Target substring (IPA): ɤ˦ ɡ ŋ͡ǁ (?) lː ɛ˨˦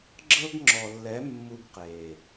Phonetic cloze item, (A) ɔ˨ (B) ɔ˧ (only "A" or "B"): A